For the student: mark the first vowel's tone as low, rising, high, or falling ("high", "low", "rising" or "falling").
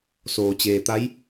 low